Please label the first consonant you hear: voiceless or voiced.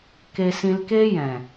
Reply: voiceless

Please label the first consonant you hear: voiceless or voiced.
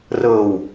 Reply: voiced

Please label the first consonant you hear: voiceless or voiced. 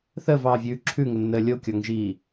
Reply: voiceless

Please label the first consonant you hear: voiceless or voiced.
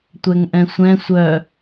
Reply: voiceless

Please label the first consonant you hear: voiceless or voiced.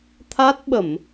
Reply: voiceless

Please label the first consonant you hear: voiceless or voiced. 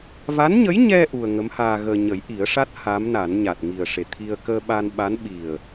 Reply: voiced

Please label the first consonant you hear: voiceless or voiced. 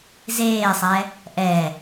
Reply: voiced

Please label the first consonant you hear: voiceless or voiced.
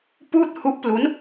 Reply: voiceless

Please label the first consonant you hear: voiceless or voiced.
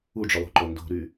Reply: voiced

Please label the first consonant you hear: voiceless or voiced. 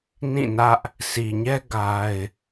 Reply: voiced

